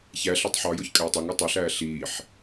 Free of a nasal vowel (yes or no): yes